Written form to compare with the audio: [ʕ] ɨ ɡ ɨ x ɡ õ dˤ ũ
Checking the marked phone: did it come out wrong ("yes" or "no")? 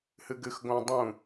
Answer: yes